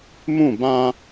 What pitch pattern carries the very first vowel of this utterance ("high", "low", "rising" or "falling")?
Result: falling